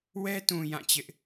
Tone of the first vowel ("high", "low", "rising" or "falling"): high